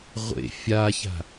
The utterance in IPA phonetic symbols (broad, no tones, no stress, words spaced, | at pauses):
ʁʷḛ fʲaça̤